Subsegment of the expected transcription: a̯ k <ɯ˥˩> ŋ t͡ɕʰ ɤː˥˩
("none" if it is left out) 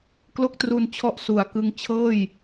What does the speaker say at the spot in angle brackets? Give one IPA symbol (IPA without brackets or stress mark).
ɯ˧